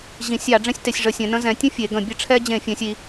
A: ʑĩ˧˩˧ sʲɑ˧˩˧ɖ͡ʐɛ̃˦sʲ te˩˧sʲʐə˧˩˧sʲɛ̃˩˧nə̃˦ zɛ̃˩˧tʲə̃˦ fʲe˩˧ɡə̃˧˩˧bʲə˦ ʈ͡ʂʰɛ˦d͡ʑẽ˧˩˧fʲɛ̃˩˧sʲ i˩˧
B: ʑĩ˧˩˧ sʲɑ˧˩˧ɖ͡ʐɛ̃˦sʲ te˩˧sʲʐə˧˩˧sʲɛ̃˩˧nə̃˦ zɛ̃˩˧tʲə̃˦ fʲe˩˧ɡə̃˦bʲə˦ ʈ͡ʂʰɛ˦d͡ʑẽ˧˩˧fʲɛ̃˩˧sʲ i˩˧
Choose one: A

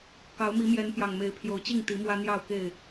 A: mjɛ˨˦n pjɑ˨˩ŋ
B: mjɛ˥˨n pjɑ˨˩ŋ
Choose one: A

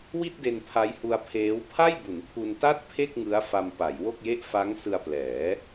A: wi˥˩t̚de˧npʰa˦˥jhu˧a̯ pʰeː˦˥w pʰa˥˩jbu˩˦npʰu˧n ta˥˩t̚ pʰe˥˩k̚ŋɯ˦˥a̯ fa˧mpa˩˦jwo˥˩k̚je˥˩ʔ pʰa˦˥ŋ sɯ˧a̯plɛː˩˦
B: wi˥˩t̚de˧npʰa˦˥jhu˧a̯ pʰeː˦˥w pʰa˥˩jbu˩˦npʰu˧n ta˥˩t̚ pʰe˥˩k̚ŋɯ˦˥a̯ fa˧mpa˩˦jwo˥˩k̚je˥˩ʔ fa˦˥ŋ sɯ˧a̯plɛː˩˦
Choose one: B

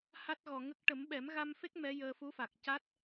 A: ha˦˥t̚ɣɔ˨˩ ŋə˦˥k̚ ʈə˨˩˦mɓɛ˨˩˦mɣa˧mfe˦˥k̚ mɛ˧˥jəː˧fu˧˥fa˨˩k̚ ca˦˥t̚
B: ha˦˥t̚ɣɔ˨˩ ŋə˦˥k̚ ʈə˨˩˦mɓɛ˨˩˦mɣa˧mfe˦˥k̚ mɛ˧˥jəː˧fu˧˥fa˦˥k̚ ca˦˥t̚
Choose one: A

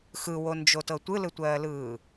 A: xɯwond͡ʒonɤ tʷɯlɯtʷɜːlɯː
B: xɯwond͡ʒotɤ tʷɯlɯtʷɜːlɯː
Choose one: B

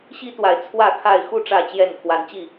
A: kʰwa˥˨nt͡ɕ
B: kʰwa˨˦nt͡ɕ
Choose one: B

